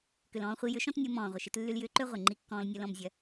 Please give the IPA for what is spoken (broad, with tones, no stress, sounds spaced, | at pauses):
k ʏ˨ l ɔ̃ː˧ χʷ i˧ j ʏ˨˦ ʃ ɔ̃˦ t nʲ o˧ m ɔ̃ː˨ ʁʷ ɪ˨ ʃ ɪ˧ t lː y˧ l j ʏː˧ ǃ ø˦ ʁʷ ɪ˨ ŋ͡ǃ i˧ kː ɔ̃ː˧ l nʲ o˧ l ɔ̃˧ m zʲ ɐ˧